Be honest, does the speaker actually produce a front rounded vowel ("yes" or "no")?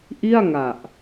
no